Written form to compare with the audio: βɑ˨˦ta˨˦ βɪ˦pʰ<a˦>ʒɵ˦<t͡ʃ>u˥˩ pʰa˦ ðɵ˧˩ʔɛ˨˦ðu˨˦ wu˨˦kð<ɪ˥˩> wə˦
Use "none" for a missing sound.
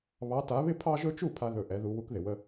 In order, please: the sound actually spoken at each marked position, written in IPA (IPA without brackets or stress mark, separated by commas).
ɑ˦, t͡ʃ, ɪ˩